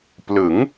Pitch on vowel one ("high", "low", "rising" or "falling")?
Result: rising